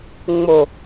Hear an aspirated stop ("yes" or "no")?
no